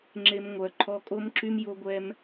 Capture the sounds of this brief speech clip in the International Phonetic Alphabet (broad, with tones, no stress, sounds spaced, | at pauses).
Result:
ŋ͡ǁ e˧ m ŋʷ œ˨ ǃʰ ɔ˧ kʼ o˦ m ǁ y˦ m j o˦ ɡʷ ɛ˦ m